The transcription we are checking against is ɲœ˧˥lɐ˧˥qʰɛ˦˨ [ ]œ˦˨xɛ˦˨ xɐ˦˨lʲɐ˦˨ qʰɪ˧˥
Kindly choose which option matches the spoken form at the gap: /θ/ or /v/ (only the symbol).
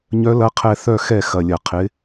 θ